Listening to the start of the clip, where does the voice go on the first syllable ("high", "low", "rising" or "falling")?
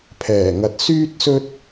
low